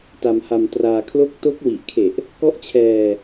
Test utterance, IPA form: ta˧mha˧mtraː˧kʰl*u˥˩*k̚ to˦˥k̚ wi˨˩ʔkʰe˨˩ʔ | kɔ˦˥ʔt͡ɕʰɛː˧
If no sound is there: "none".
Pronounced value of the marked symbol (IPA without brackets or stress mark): o˥˩